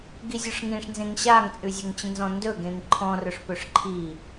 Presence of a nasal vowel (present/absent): present